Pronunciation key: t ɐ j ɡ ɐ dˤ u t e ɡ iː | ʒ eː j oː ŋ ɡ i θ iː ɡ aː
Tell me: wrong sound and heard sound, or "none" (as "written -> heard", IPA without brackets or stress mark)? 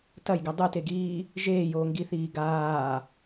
none